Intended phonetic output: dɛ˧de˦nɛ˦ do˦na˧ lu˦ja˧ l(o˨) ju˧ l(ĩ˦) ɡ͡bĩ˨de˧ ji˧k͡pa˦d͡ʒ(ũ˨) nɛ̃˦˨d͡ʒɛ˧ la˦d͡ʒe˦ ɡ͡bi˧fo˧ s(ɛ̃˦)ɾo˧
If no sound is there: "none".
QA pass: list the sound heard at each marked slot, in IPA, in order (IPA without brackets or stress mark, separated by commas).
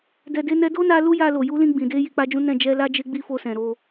o˨, ĩ˧, ũ˦, ɛ̃˨